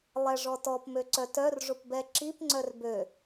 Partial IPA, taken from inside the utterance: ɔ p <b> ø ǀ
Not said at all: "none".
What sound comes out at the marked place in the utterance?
m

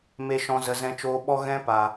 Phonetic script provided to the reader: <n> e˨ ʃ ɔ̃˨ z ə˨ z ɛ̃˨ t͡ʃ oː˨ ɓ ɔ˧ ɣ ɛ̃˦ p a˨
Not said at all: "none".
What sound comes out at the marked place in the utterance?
m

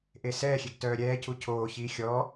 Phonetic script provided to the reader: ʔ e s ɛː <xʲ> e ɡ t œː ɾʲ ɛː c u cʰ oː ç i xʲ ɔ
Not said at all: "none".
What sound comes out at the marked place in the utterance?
xʲ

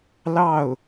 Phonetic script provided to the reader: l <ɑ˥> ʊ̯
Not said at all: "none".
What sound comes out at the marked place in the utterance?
ɑ˥˩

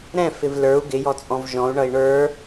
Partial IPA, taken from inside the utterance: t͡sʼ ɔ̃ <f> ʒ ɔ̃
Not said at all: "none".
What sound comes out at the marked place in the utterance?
v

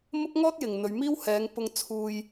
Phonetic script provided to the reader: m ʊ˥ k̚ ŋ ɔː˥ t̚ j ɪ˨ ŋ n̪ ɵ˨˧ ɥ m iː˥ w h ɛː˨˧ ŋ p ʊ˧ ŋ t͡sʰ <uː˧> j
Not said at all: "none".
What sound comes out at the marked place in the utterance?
uː˧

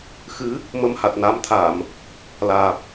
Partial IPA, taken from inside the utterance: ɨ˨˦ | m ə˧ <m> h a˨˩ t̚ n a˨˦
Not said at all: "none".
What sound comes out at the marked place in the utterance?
m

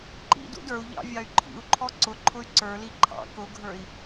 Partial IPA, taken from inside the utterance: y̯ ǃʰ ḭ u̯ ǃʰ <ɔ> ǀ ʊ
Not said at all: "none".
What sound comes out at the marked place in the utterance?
ɔ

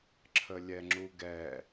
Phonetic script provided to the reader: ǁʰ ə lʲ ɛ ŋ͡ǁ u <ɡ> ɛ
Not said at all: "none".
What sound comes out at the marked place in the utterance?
ɡ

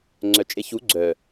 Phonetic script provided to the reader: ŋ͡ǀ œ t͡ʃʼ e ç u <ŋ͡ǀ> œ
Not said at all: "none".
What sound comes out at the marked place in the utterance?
ɡ͡ǀ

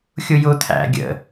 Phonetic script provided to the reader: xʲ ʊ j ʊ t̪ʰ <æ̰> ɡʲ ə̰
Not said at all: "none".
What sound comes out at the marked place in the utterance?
æ̰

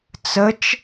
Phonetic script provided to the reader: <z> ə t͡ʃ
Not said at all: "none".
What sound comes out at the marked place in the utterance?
t͡s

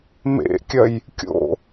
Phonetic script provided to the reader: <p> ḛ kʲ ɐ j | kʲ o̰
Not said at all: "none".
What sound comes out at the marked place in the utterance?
m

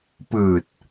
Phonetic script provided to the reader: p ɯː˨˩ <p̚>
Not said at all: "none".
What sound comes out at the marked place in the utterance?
t̚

